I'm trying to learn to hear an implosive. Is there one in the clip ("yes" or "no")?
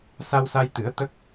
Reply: no